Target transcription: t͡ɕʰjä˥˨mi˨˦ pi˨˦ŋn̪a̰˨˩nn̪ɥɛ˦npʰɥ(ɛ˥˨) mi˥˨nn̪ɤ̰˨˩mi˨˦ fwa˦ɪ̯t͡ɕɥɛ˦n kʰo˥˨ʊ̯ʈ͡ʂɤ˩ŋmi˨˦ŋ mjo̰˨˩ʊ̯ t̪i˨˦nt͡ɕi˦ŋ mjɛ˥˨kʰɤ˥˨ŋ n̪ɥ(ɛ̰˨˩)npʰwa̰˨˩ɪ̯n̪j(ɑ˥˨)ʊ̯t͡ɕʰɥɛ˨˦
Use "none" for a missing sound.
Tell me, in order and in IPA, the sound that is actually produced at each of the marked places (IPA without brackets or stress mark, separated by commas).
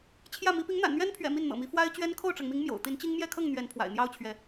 ɛ̰˨˩, ɛ˨˦, ɑ˦